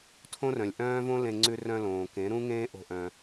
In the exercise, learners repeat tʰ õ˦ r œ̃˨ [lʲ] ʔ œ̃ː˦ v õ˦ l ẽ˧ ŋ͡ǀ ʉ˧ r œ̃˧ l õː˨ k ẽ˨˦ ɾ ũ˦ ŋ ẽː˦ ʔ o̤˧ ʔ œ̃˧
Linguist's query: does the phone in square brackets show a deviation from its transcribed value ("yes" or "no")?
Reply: no